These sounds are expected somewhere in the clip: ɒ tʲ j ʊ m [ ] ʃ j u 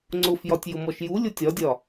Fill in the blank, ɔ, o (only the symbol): ɔ